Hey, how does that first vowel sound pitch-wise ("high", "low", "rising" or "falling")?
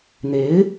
rising